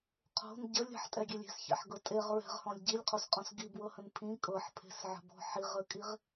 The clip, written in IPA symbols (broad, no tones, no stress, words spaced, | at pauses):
qʰo̤n ɟəlʲ ə̤ħtʼɛɡʲelʲ e̤sçɛ̰ħɡɤ tʼeʁ ɹɛ̤ʁhɔ̃lʲ ɟilʲqʰosqʼɔ̃s ɡibwɤhə̃n pʰĩ kʼɤħpʰe̤sʕə̤bɔ̤ ħiʁəkʼiʁ